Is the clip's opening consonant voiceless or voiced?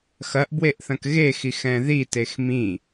voiceless